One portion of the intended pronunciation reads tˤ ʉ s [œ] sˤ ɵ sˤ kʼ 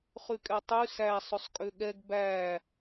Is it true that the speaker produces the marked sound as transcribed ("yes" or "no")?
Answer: no